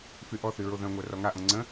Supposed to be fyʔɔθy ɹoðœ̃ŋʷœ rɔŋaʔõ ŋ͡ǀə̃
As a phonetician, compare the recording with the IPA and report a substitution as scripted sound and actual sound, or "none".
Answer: none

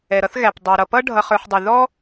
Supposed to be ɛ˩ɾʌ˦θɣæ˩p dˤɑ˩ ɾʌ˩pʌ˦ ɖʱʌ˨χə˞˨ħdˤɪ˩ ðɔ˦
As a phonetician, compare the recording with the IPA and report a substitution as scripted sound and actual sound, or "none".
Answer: none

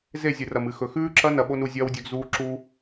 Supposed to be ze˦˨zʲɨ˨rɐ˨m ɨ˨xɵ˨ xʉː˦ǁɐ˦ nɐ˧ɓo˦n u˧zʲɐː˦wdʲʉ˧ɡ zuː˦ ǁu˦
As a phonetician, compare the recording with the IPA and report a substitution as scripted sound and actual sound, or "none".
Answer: none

